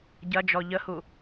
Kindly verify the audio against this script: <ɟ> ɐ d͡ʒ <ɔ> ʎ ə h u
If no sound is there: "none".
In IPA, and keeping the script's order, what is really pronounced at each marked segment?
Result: ɟ, ɔ

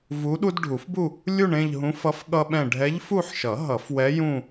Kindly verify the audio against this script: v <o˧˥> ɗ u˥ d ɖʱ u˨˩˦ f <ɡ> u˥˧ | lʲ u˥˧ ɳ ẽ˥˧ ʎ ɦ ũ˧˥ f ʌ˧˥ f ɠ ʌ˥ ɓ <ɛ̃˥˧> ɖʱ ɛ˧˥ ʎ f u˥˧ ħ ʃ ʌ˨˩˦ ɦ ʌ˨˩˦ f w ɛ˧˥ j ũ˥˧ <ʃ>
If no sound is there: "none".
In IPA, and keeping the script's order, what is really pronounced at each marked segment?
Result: u˧˥, b, ɛ̃˥˧, none

